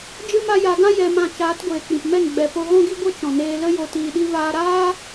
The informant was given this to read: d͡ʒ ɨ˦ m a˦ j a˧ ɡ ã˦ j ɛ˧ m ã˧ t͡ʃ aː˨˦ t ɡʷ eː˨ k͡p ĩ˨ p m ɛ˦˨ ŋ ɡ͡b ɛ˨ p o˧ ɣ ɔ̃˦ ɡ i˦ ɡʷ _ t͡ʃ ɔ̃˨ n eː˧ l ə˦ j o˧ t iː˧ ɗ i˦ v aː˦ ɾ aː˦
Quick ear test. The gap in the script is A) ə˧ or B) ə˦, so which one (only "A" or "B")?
B